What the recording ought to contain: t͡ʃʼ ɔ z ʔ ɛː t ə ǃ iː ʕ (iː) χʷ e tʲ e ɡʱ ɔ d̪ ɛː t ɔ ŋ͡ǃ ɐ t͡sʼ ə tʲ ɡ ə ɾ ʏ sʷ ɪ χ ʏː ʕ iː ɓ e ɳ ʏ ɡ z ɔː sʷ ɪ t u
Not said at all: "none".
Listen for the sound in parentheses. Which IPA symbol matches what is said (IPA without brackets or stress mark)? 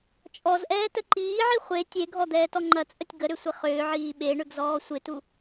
i